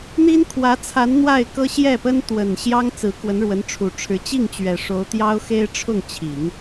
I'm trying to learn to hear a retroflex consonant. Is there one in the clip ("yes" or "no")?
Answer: yes